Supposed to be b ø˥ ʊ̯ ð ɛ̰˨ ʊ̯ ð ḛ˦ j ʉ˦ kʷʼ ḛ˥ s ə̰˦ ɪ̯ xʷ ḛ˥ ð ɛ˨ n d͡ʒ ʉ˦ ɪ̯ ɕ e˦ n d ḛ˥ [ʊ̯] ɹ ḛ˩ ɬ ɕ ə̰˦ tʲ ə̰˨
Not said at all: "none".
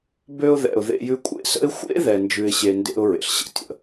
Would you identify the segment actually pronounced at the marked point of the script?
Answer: ʊ̯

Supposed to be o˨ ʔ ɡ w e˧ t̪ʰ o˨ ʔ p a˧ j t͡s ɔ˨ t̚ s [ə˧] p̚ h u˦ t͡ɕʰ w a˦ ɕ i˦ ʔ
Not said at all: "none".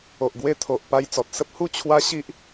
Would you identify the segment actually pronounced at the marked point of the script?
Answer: ə˦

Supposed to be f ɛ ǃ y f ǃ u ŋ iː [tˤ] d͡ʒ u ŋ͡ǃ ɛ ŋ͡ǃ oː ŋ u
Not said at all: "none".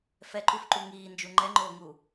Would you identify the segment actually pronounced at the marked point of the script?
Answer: n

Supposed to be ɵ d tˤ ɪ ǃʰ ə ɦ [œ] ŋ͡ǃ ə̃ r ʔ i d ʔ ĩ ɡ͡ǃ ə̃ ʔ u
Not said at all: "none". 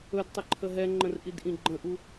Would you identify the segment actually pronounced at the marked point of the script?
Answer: ɛ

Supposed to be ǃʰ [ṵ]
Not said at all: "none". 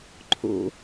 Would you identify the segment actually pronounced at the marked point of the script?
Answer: ṵ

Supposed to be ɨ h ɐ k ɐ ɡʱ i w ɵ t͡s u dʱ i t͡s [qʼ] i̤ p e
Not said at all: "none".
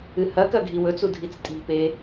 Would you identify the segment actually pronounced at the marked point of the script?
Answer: tʼ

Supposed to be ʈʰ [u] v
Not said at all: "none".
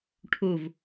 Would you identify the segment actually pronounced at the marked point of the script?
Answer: u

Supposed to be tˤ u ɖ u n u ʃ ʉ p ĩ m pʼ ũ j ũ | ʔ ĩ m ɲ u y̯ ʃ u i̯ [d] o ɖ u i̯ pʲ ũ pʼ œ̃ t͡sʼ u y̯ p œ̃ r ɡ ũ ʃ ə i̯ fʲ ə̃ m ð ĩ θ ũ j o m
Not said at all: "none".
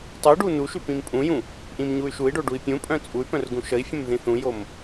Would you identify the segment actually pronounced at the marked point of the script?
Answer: ɖ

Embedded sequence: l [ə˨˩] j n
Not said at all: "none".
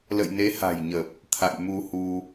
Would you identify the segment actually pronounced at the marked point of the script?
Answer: ə̰˧˨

